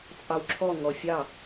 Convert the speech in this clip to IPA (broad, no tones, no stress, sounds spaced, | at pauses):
t͡sʼ ɑ w ǁʰ ɔ ŋ ɔ fʲ ɑ